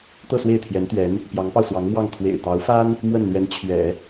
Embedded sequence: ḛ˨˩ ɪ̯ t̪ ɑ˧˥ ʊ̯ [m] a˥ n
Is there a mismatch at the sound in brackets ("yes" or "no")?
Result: yes